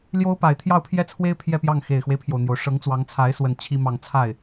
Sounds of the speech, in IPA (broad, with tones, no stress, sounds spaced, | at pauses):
l j o˥ ʊ̯ p a˨˩ ɪ̯ t̪ʰ j ɑ˥˧ ʊ̯ pʰ j ɛ˥˩ t͡sʰ w e˥ ɪ̯ pʰ j ɛ˥˧ p j ɑ˥˩ ŋ x e˨˩ ɪ̯ x w e˦ ɪ̯ pʰ j o˩ ʊ̯ n̪ j o˩ ʊ̯ ʂ ɤ˧˥ ŋ t͡s w ɑ˧˥ ŋ t͡sʰ a˧˥ ɪ̯ s w ə˨˩ n t͡ɕʰ i˥ m ɑ˥˧ ŋ t͡sʰ a˥˩ ɪ̯